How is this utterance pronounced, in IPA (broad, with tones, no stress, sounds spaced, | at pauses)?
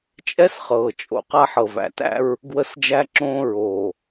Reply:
t͡ʃʼ ɛ˦ s χ ɤː˨ t͡ʃʼ o̰˨ q a˦ ħ ɤ˨ v æ̰˨ t æ̰˦ ɹ | ɡ w ə˦˨ s d͡ʒ æ˦ ǁ õː˦ ɹ oː˨